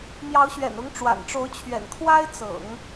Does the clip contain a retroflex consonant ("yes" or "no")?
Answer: yes